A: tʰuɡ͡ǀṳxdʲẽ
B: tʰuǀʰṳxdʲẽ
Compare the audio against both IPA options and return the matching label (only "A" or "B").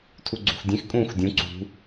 A